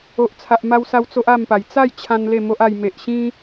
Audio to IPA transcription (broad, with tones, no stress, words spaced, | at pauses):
o˨ʔt͡sʰa˨ʔ ma˧wsa˧w t͡so˦ʔa˥˧mpa˨˩j t͡sa˥˧jt͡ɕʰã˧n le˥˧mo˦ʔa˧j me˨ʔɕĩ˦